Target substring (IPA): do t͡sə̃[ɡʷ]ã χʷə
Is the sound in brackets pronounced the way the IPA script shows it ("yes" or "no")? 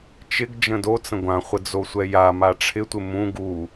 yes